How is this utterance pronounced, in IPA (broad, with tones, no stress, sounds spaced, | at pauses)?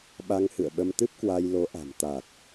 ɓ a˧ ŋ h ɨ̰˧˨ ə̯ ɓ ə˧ m t̪ ɨ˦˥ p̚ k w a˧ j l o˨˦ ʔ a̤˨˩ m t̪ a˨˩ t̚